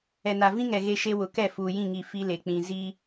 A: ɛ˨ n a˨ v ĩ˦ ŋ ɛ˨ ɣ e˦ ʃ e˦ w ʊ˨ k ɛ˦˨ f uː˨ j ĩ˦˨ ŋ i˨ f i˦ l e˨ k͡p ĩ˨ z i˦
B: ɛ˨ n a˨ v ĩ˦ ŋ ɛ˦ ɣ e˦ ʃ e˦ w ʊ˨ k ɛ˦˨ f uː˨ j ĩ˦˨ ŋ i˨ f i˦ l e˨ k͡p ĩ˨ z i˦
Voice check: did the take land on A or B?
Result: A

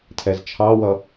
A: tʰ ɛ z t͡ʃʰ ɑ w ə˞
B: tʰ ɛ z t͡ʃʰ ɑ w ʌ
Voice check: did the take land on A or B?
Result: B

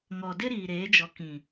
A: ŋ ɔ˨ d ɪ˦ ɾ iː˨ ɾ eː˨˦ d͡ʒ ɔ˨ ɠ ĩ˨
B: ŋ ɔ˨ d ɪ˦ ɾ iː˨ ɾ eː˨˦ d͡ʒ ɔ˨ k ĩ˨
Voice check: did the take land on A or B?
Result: B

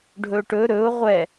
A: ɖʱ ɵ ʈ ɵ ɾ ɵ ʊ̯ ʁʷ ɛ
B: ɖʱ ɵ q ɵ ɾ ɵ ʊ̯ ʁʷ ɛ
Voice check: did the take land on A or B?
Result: A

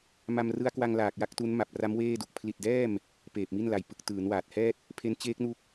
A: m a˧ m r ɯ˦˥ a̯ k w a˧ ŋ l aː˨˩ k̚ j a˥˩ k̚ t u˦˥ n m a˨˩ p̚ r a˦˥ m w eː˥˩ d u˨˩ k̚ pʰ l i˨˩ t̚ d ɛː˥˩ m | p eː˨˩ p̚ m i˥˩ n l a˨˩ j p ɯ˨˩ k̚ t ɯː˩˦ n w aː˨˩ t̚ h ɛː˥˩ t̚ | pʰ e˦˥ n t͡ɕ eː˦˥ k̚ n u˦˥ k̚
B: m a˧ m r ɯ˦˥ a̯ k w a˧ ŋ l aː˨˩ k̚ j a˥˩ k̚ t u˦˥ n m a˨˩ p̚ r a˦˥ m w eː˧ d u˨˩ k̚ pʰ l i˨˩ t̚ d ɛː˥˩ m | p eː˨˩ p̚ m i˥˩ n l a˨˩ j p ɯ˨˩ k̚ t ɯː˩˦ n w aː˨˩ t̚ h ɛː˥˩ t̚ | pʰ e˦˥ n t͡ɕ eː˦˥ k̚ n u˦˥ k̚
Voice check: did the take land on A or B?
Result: A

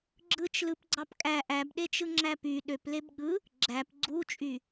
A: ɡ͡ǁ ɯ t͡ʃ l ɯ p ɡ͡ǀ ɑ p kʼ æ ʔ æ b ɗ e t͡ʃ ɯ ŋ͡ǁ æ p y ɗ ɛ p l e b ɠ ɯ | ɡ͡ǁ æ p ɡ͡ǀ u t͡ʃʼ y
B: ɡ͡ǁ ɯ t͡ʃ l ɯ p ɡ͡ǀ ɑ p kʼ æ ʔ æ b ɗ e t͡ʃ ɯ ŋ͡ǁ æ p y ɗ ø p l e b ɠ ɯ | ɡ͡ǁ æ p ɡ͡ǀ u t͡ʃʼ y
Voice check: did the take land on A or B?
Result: B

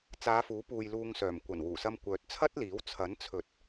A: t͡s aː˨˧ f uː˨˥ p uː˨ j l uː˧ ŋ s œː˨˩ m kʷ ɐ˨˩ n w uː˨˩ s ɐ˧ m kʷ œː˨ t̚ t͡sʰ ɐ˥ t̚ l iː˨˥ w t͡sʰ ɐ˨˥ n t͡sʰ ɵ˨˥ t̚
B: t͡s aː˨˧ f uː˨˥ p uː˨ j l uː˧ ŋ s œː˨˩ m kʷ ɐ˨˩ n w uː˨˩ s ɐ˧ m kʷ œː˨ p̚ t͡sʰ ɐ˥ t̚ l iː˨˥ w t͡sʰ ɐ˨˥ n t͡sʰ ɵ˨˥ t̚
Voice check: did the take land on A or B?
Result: A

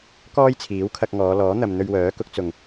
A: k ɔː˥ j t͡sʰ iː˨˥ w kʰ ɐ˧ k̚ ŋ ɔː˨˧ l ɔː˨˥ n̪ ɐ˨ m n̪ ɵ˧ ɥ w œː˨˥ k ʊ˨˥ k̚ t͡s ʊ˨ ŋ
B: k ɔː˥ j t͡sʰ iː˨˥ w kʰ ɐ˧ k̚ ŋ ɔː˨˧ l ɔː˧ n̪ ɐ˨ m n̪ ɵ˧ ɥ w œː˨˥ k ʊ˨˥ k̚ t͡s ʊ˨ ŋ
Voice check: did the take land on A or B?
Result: A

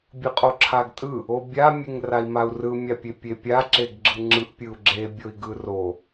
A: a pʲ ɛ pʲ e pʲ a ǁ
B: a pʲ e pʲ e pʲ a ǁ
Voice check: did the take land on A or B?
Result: B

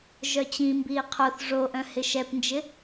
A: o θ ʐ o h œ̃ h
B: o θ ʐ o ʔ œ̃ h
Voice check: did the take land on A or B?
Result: B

